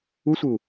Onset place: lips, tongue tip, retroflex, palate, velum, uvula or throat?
tongue tip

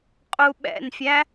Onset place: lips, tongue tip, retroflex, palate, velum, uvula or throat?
uvula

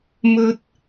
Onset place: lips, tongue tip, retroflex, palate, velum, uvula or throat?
lips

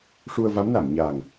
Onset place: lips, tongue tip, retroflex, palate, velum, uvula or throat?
retroflex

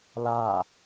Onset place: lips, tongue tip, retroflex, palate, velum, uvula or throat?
tongue tip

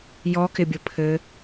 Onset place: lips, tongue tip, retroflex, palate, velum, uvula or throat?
palate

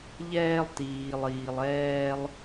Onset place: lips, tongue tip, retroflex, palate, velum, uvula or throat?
palate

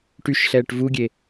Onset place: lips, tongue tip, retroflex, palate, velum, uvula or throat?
retroflex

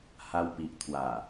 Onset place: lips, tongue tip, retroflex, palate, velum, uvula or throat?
throat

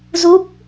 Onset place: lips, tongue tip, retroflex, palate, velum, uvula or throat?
tongue tip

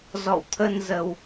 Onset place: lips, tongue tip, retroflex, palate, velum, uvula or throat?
tongue tip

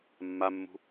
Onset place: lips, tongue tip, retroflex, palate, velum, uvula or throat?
lips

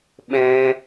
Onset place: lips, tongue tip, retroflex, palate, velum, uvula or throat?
lips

